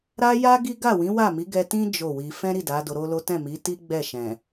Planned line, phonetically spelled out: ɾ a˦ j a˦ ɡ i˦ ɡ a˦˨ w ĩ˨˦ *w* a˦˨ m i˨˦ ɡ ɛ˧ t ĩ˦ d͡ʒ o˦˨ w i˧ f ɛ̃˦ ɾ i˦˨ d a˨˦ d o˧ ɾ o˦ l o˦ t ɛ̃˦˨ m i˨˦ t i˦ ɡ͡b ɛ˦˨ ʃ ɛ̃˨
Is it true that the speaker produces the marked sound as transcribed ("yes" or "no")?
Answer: yes